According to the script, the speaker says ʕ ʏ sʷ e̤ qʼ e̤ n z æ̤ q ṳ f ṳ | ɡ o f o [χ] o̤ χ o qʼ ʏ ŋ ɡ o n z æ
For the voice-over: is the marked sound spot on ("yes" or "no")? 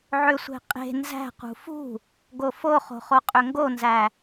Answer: yes